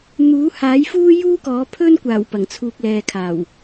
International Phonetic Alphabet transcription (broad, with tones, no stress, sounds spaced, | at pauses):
n̪ uː˨˥ h aː˨˥ j f uː˥ j uː˥ k ɔː˨˥ pʰ ɵ˥ n kʷ aː˨˩ w p ɐ˨˩ ŋ t͡sʰ uː˨ k̚ l ɛː˨ kʰ aː˨˩ w